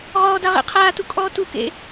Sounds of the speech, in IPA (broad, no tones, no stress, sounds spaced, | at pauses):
ʁ ɔː d a ʁ ḛ qʰ aː t u kʼ ɔː t u k ḛ